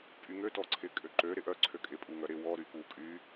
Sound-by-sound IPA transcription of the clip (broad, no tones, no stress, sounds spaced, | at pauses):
pʼ y ŋ ø t ɔ ǀʰ ɪ kʼ ø ǃ ø ɾ ɪ ʔ œ ǀʰ ø kʼ ɪ pʼ u ŋ œ ɾ ɪ w ɔ ɾ y p u kʼ y